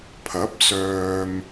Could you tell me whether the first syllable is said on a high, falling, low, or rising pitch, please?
rising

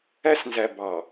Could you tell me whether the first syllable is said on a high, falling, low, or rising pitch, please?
high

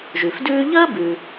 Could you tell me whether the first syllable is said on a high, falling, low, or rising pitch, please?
low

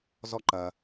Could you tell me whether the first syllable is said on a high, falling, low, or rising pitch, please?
high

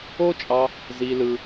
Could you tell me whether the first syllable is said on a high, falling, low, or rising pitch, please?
high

